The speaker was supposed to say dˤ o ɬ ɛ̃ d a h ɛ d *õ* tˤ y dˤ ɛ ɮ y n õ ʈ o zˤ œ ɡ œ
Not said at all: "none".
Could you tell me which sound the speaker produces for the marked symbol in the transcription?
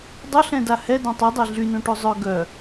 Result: õ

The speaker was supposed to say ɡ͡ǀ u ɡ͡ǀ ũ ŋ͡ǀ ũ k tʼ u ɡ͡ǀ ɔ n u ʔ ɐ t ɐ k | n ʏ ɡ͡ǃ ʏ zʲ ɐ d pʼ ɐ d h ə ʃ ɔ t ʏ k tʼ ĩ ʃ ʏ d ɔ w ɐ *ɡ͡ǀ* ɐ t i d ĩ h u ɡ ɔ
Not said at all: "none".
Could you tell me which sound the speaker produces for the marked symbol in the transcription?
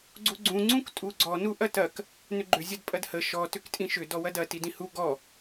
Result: d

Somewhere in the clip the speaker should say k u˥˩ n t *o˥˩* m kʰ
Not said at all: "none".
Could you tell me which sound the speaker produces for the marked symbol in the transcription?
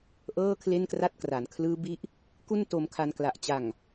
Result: o˧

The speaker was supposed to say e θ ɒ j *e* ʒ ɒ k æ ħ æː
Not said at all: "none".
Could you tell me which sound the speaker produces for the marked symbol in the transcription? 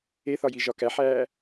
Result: i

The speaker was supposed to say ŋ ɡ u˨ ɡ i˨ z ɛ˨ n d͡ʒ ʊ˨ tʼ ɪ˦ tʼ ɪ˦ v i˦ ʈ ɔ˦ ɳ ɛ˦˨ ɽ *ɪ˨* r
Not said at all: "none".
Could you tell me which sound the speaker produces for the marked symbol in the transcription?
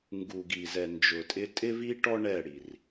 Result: i˨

